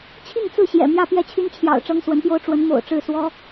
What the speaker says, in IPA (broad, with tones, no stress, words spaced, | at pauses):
t͡ɕʰi˥˧ŋt͡sɹ̩˥˩ɕjɛ̰˨˩ mjä˥˧pjɛ˥˩t͡ɕʰy˥nt͡ɕʰjɑ̰˨˩ʊ̯ ʈ͡ʂɤ˥ŋswə˧˥npjo˥ʊ̯ ʈ͡ʂwə˧˥nmo̰˨˩ʊ̯ʈ͡ʂɻ̩˥˩ swɔ˥